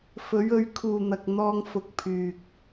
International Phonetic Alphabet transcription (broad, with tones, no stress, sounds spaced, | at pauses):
f ɵ˨˥ ɥ ɵ˧ ɥ kʰ uː˨ n̪ ɐ˨ k̚ n̪ ɔː˧ ŋ f ʊ˨˥ k̚ pʰ yː˨ k̚